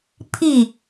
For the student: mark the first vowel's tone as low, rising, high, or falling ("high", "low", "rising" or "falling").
falling